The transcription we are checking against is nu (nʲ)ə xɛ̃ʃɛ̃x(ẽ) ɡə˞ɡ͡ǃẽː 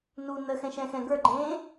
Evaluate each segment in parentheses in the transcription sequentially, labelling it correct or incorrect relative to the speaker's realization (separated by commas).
incorrect, incorrect